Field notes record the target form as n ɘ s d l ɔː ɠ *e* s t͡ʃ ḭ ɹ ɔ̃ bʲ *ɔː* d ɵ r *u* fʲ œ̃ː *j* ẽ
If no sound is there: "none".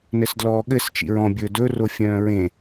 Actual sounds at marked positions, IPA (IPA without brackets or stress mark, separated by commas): ɘ, ɵː, o, ɹ